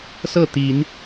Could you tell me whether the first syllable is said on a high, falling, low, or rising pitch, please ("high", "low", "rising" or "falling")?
falling